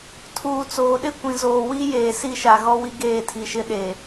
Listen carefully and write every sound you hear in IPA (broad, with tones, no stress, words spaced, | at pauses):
tʰuː˨t͡soː˨ ɗɪ˦ kʷĩ˨zoː˨wi˦jeː˨ si˦˨ʃa˨ɣɔ˦ wi˦ɡeː˦˨tʰi˨ʃɪ˦ ɗe˨